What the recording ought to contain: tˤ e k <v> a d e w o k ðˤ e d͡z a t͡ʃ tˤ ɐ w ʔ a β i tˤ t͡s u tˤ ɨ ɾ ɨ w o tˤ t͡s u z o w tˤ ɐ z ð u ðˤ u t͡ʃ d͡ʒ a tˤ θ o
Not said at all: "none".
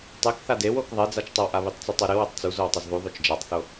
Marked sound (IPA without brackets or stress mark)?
θ